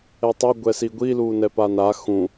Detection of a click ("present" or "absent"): absent